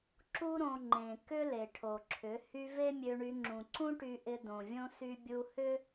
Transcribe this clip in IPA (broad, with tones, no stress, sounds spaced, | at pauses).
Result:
ǁ u˦ ɾ õ˧ ŋ͡ǃ ẽ˨ k ʏ˦ l e˨ ʈʰ o˨ ǁʰ ʏ˨˦ h y˦ v e˦ mʲ ø˧ ɳ y˧ ŋ͡ǁ ũ˨ ǀ ũ˦ ʈ y˧ ʔ ɪ˧ d õ˨ vʲ õ˦ s y˧ bʲ u˧ h ʏ˦